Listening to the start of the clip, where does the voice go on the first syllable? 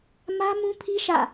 high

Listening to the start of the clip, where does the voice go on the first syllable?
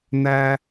high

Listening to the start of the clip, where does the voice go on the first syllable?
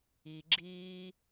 low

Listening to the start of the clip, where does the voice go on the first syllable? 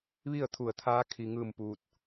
falling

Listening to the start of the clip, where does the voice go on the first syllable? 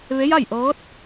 rising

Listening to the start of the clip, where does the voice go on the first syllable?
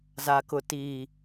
low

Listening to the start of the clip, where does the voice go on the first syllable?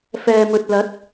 low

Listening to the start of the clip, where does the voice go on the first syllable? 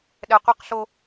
low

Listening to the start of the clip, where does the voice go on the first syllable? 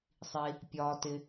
low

